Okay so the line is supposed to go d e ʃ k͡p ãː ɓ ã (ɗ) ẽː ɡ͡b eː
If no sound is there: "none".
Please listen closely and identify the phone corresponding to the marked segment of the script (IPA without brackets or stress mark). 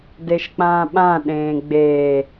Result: ɗ